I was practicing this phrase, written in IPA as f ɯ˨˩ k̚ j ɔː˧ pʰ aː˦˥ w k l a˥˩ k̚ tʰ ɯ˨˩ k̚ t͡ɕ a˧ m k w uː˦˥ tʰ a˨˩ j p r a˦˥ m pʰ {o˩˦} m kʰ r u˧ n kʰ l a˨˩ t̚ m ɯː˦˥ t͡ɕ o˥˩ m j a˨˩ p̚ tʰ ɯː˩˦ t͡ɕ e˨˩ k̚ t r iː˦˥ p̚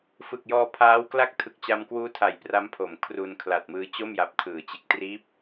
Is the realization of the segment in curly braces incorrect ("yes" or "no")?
no